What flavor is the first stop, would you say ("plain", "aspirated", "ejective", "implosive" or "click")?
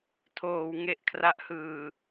aspirated